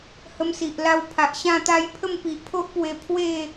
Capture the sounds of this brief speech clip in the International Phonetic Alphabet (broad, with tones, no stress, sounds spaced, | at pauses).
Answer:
h ə˧ m s i˨ ʔ l a˧ w pʰ a˨ ʔ ɕ ã˥˧ t̪ a˥˧ j pʰ ə˥˧ m p i˨ ʔ pʰ o˦ ʔ p w e˧ pʰ w e˥˧